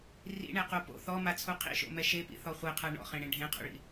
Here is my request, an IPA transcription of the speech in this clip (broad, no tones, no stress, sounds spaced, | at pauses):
r ḭ ɳ e q o p o̰ θ ɔ m a t͡sʰ u qʰ ḭ ʃ o̰ m ɛ ʃ e p ḭ θ ɔ χʷ e qʰ a ɳ ɔ̰ χ ẽ ɽ ẽ ɖʱ ẽ qʰ o̰ ɭ ḭ